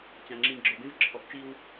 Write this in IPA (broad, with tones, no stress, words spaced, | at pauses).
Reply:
t͡ɕã˨ŋ͡ǁĩ˨ɡ͡ǁɔ˨bẽ˦v ǁʰɔ˨ʔt͡ʃi˦w